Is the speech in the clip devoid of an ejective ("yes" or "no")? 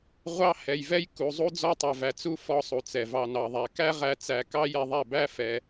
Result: yes